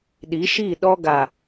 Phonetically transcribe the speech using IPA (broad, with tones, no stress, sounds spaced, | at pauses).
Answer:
ɗ i˨˦ ʃ i˦˨ ɗ ɔ˦ ɡ a˨